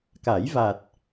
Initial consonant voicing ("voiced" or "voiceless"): voiceless